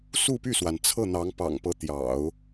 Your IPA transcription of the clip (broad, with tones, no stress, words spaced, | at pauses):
su˥˧py˥˩swa˩n t͡sʰɤ˥˩n̪ɑ˧˥ŋ pɑ̰˨˩ŋpɤ˧˥ t̪jɑ̰˨˩˦ʊ̯